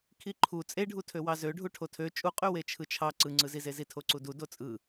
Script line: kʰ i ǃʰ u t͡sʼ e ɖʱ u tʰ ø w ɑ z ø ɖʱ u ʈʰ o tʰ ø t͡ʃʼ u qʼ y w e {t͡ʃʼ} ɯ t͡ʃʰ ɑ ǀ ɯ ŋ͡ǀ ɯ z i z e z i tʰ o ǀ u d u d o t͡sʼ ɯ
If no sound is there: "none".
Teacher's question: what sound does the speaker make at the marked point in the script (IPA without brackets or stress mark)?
t͡ʃʰ